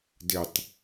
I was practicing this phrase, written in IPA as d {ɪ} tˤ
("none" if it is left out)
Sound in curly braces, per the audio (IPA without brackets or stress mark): ɪ